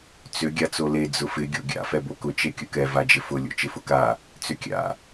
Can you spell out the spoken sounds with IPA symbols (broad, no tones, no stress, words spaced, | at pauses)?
t͡sʏ ɡʲat͡sole d͡zʊfɪ ɡʲo̰ɡʲa̰ fɛbokʊ t͡ʃekʲʊkɛ vad͡ʒɪfʊ lʲo̰t͡ʃɪfʊka | t͡sʏkʲa̰